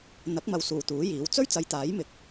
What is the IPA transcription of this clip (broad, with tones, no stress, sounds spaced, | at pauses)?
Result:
n̪ ɐ˨˥ k̚ m ɐ˨ w s uː˨˩ t̪ uː˨˥ j iː˨˥ w t͡s ɵ˥ ɥ t͡s ɐ˨˧ j t̪ aː˨˥ j m ɪ˨˥ k̚